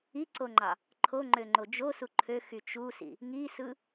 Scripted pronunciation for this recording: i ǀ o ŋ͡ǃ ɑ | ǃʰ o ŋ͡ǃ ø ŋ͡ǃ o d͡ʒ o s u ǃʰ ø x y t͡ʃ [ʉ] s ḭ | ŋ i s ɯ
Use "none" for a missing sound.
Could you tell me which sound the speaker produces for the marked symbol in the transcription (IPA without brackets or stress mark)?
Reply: u